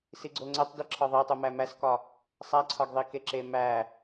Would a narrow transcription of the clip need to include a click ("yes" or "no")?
yes